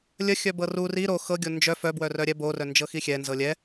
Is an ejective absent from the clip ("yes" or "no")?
yes